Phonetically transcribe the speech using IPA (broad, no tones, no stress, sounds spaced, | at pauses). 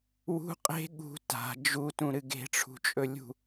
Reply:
w ṳ qʼ e̤ ɠ ṳ t a̤ d͡ʒ u t ũ ɾ ɨ ɡ e̤ ʈ͡ʂʰ ṳ t͡ʃʼ ɵ lʲ ṳ